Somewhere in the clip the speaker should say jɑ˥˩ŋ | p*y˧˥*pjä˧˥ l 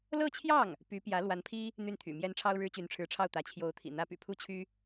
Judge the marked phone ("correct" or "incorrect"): correct